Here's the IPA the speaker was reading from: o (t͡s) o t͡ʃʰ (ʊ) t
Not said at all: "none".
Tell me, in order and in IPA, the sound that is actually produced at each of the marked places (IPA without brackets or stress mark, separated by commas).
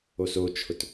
s, ʊ